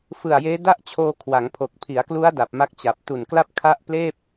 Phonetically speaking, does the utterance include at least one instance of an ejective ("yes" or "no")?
no